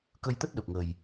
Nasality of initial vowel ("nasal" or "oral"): oral